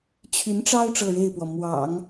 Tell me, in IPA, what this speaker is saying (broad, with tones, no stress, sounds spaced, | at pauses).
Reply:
t͡ɕʰ y˧˥ n ʈ͡ʂ ɑ˥ ʊ̯ ʈ͡ʂ ɤ˥˧ ɻ e˥˩ ɪ̯ p w ɔ˩ m w ɑ̰˨˩˦ ŋ